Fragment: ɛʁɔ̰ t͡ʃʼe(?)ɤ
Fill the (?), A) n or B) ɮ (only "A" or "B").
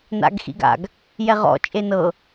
A